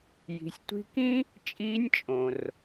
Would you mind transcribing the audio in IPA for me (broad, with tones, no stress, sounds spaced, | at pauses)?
j i̤˩˧ sʲ tʷ i̤˧˥ k ĩ˥ | t͡ʃʼ iː˧˥ nʲ t͡ʃʼ õ˩ r